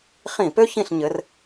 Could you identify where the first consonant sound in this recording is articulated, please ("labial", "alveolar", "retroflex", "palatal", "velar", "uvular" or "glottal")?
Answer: uvular